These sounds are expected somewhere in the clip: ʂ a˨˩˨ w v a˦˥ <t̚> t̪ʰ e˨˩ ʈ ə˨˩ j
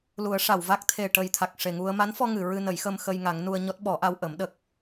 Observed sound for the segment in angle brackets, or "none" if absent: k̚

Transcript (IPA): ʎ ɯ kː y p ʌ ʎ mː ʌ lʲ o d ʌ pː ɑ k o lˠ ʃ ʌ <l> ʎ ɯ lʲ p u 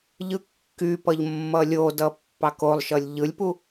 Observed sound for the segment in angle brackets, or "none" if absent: lʲ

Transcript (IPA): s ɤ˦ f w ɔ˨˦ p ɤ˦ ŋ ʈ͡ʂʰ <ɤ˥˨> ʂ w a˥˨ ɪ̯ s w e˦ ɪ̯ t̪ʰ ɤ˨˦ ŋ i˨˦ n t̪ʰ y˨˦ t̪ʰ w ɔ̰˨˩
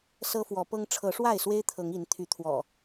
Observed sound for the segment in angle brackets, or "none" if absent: ɤ˨˦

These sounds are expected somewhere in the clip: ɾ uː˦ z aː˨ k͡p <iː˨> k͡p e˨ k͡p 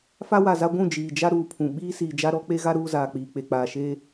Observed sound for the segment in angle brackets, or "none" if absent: iː˨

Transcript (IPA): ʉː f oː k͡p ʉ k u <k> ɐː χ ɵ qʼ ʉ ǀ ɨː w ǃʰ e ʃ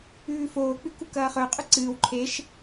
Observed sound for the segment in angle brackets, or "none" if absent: k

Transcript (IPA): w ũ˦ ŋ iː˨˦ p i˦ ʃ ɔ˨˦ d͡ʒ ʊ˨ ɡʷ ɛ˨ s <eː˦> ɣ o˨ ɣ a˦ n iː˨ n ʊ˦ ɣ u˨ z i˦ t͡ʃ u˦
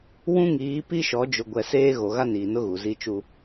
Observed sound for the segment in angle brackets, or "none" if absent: eː˦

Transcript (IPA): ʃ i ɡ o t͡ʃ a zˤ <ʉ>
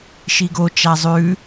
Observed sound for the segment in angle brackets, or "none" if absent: ʉ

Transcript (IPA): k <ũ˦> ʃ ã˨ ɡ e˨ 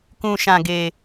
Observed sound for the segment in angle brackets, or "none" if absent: ũ˨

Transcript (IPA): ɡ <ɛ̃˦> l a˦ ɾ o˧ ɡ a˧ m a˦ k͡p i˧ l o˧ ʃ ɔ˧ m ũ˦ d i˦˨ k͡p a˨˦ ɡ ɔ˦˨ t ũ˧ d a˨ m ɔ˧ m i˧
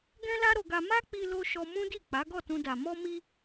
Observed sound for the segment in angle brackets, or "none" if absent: ɛ̃˦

